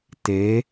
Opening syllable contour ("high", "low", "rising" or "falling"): rising